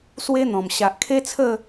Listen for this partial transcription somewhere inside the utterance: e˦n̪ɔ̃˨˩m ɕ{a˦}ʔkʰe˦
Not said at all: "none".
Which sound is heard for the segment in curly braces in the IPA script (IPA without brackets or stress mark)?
a˨